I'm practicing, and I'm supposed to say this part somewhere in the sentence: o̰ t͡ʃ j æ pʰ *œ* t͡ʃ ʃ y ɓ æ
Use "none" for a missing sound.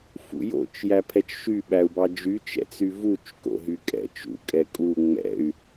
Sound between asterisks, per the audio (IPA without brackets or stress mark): ɛ